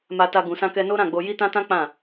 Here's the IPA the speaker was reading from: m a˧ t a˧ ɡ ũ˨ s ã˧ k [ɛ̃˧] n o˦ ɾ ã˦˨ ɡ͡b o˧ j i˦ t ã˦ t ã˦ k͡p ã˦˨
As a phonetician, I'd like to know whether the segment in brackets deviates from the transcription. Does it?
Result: yes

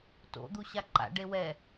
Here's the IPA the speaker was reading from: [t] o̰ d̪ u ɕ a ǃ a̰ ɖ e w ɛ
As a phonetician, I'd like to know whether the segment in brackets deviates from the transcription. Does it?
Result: no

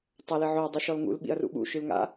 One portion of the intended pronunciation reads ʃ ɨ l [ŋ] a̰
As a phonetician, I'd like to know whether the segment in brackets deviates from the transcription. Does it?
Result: no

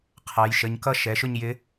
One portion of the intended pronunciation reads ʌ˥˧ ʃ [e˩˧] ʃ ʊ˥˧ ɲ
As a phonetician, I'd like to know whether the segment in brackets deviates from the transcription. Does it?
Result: yes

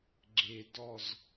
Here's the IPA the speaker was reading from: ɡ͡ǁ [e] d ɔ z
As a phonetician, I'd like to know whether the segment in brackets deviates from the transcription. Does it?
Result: no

